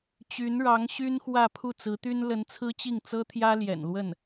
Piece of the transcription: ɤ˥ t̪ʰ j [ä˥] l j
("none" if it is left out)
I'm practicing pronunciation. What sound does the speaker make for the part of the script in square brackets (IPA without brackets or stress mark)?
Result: ä˥